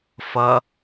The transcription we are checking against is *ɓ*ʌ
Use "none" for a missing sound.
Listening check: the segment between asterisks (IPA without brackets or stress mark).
f